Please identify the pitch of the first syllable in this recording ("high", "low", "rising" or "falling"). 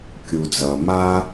low